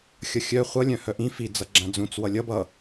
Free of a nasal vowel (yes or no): no